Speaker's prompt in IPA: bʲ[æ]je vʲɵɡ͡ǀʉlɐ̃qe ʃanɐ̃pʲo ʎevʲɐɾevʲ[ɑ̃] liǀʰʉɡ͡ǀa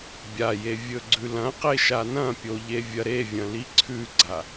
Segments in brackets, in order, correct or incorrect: incorrect, incorrect

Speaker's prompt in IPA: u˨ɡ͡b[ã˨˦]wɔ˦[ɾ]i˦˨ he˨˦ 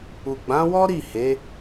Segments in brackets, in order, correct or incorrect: correct, correct

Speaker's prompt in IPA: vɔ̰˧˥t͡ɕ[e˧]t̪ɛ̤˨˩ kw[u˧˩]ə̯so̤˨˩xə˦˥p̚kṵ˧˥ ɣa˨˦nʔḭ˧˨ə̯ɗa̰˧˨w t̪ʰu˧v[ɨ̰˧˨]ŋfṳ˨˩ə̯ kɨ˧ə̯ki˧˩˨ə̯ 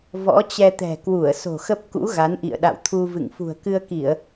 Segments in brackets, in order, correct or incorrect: incorrect, correct, correct

